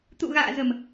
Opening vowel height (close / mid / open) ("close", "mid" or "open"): close